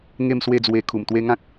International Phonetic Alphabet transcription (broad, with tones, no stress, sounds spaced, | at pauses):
ŋ e˥˧ m s w e˥˧ d͡z w e˧ kʰ u˨˩ m t̪ w e˦ ŋ ã˦ k̚